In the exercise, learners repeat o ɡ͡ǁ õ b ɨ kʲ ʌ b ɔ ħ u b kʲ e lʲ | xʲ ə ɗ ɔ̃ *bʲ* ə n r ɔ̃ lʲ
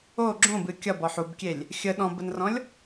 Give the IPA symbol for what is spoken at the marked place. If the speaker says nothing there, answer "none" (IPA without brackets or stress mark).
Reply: b